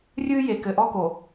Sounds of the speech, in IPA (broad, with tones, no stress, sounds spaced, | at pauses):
rʲ ɨː˦ j e˨ k ɘ˨ ʔ ɔ˦ k o˨